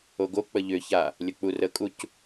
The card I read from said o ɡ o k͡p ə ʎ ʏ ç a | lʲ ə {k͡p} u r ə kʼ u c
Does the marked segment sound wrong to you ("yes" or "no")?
no